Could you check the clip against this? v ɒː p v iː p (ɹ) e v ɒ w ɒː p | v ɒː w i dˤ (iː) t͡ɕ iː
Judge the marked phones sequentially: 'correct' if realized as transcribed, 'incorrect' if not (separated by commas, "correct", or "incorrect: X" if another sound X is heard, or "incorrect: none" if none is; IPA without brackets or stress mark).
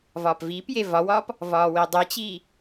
incorrect: j, incorrect: i